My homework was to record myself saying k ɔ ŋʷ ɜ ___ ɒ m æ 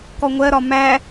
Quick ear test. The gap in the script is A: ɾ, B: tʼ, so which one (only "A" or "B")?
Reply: A